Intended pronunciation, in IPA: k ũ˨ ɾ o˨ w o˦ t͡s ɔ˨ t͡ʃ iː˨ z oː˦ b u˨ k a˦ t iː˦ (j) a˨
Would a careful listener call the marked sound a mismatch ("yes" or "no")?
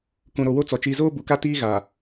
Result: yes